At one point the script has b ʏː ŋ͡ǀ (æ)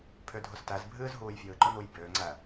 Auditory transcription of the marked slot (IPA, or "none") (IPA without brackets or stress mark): æ